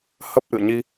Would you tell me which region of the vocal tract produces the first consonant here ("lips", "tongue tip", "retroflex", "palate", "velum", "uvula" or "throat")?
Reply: throat